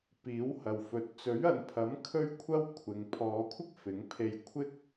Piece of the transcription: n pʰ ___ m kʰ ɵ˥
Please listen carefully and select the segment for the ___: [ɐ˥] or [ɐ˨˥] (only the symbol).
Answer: ɐ˨˥